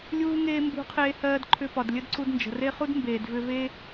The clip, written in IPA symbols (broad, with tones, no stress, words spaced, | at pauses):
lʲuː˦ŋeː˦ mbṳ˧qʰeː˧ hɜː˧dǃʰʏ˧pɒ˨d lʲə˦dǀu˧dnd͡ʒə̤˨ re˧χu˧d mbeː˨dvʏ˧ ve˦